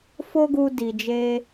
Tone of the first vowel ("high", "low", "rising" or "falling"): high